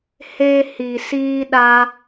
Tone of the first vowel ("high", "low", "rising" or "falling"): high